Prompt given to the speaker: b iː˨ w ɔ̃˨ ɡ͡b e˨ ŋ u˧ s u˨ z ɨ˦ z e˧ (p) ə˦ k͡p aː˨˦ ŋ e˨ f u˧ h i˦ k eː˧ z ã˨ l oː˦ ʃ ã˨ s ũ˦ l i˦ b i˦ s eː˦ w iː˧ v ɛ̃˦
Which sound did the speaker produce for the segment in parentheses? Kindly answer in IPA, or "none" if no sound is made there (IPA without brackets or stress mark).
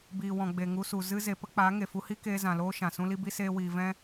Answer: p